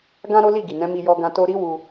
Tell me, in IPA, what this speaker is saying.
ɡ ã˦ ɾ o˦ l i˦˨ ɡ i˨ n ɛ̃˨˦ m i˧ j ɔ˧ ɡ ã˧ t o˧ ɾ i˦ w u˧

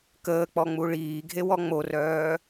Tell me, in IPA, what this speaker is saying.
k əː k͡p ɔ ŋ͡m u ɭ iː ɡʱ e w ɔ ŋ͡m o r œː

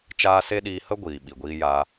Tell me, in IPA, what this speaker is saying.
t͡ʃ aː˧ s e˦ ɗ iː˧ h ə˦ ɡʷ iː˨ ɓ i˨ ɡʷ iː˧ j aː˧

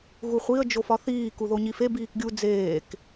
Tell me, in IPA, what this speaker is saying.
ɣ u χʷ i ə̯ d͡ʒ o f ɒ θ iː k u ð o ɲ i f e b iː k ɡʲ u d͡z eː k

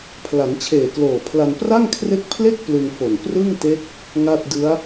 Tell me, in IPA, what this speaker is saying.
pʰ l a˩˦ n t͡ɕʰ eː˨˩ k l oː˨˩ pʰ l a˧ n p r a˥˩ ŋ kʰ r e˦˥ k̚ pʰ l e˥˩ k̚ p l ɯ˧ ŋ f o˨˩ n p r ɯ˥˩ ŋ t e˦˥ k̚ | ŋ a˥˩ t̚ d ɯ˦˥ a̯

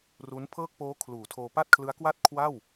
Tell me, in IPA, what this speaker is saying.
r u˦˥ n pʰ ɤː˥˩ k̚ p oː˦˥ kʰ l uː˩˦ tʰ oː˧ p a˥˩ t̚ kʰ l ɯ˦˥ a̯ k w a˥˩ t̚ kʰ w a˥˩ w

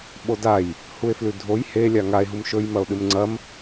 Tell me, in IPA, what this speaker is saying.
ɓ o d a j | h u e̯ f l ʉ dʱ o j h e lʲ a ŋ a e̯ ɦ u m ʃ ɵ j m ɐ o̯ ɗ ɨ m ŋ͡ǀ ɐ m

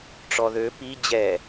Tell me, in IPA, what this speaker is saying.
ʈ͡ʂ ɔ ð ø p i d͡ʑ ɛ

